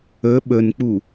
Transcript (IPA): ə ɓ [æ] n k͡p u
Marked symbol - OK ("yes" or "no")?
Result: no